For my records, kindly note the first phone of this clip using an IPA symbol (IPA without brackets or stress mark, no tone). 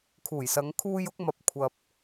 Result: kʰ